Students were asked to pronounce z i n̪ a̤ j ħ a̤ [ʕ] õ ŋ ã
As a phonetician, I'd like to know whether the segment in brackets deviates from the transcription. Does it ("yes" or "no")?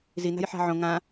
no